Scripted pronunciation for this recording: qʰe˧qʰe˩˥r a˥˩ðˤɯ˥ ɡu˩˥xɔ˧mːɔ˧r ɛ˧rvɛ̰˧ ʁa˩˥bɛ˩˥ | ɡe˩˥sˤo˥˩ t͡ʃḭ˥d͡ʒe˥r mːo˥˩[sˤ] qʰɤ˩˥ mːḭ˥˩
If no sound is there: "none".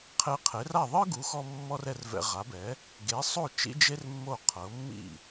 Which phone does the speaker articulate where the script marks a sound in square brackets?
none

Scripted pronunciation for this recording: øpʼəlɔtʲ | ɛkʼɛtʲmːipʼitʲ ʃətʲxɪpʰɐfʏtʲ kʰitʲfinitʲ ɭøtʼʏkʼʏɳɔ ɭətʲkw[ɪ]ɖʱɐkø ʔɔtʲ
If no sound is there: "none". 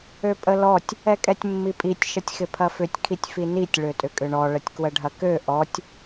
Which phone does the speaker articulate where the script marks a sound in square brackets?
ə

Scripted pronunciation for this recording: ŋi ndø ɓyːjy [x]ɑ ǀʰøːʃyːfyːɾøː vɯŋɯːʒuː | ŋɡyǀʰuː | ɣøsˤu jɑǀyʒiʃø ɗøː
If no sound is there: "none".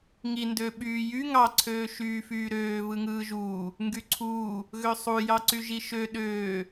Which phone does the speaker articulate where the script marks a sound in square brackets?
ŋ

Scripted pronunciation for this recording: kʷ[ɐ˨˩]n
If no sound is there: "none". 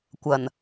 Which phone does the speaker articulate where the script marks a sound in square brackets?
ɐ˨˩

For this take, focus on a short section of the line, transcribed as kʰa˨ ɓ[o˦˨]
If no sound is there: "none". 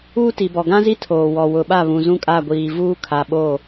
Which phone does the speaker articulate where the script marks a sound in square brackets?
o˦˨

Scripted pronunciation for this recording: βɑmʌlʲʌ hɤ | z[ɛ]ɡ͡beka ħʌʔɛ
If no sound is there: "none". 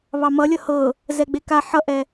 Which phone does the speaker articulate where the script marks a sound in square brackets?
ɛ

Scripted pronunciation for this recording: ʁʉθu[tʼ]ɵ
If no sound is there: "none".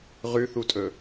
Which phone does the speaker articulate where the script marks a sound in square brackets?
tʼ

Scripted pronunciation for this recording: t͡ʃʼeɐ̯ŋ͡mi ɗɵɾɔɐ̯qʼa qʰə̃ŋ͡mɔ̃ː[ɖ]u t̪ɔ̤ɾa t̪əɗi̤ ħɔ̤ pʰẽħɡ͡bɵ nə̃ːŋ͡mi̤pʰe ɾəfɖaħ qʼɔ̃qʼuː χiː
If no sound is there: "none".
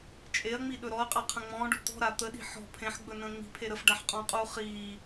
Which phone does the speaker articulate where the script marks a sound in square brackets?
ɖ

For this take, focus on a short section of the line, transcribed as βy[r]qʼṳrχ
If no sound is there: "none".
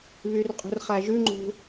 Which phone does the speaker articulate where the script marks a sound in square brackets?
r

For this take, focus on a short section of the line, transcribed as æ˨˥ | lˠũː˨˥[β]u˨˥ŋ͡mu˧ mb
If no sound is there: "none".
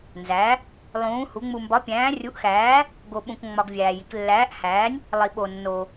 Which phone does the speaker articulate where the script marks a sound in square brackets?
h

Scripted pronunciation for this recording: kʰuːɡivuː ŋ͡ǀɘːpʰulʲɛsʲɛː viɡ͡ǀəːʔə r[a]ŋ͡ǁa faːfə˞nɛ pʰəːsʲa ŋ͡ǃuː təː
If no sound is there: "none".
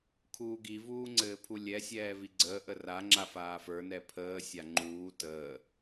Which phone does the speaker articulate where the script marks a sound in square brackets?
a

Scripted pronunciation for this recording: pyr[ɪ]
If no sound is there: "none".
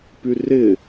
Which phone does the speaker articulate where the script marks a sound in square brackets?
ɪ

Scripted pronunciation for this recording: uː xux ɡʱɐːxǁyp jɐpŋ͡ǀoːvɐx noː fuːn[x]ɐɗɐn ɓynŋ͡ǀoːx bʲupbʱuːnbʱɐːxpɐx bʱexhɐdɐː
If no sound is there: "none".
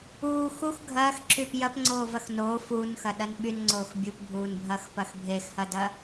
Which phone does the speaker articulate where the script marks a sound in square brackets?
x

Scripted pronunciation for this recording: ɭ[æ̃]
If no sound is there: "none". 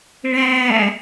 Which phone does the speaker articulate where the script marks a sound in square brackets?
æ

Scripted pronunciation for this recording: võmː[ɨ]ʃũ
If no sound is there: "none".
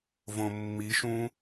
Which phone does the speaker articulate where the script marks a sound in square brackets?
i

